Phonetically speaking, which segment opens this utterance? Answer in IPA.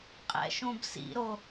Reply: qʼ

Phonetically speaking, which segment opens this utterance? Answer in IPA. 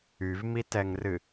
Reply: y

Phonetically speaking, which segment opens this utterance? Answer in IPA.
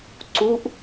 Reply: ǀ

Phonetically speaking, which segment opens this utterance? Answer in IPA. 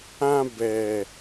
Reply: ã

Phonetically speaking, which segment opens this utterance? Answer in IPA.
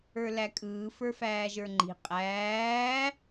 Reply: ə˞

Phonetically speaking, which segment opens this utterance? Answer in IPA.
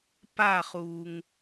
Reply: p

